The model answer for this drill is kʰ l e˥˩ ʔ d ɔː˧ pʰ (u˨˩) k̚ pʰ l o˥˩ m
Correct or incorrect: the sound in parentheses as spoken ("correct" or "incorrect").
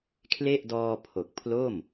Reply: incorrect